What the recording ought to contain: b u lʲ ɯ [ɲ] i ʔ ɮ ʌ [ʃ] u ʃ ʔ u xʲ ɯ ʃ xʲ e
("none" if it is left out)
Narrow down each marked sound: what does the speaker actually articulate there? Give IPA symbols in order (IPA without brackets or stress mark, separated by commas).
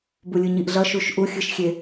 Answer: ɲ, ʃ